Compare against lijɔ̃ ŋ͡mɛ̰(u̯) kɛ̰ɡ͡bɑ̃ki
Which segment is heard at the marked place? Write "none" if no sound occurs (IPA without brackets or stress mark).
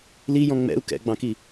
u̯